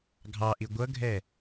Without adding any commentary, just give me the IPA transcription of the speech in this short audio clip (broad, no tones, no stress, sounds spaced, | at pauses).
ɡʱ ɑ ʔ i ɡʷ ʌ ɡʱ ɛ